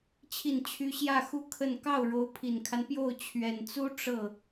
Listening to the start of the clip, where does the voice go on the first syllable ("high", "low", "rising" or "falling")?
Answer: falling